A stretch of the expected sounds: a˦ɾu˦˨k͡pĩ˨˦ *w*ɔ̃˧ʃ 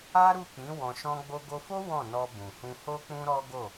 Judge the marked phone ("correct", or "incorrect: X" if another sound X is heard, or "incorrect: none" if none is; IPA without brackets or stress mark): correct